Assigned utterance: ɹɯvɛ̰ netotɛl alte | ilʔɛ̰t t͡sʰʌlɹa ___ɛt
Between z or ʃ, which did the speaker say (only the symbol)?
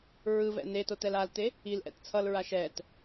ʃ